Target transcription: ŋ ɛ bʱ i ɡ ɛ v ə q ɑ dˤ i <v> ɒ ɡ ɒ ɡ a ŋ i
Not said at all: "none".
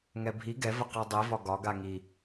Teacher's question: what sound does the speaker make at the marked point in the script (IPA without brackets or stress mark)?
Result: v